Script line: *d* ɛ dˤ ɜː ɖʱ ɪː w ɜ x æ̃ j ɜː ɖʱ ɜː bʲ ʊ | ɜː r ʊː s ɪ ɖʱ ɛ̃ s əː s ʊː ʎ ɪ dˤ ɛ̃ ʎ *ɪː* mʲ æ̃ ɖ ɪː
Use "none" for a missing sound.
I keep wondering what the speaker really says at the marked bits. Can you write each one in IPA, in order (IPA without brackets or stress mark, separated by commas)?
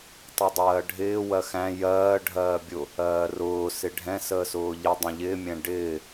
tˤ, ɪː